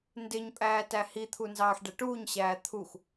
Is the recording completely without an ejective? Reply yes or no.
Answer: no